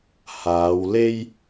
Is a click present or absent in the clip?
absent